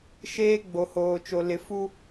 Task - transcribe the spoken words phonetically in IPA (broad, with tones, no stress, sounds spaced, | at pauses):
ʃ eː˦ ɡ͡b o˨ h oː˨ t͡ʃ o˨ l ɪ˨˦ f u˦